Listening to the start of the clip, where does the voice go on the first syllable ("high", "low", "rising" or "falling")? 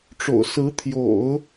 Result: low